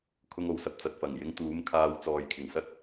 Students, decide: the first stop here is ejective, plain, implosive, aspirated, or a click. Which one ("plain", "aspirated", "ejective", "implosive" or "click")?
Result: aspirated